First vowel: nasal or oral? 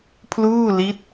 oral